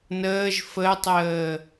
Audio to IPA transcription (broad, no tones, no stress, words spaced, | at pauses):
nəːʒ fətˤəː